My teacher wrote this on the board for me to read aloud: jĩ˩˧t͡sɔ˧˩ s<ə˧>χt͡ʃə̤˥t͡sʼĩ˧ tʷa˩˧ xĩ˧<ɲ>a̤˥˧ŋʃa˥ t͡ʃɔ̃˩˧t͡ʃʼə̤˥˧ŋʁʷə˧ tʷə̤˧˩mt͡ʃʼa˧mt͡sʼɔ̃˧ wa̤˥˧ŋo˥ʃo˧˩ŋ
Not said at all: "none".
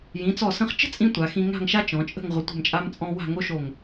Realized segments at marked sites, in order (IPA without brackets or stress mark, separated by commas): ə̃˧, ŋ